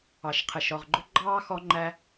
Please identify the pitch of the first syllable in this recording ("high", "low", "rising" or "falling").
low